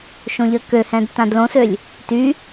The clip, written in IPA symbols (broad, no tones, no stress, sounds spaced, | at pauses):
ʃ õ ʎ ə k ø h ɛ̃ d t ã d l õ s ø lʲ | t y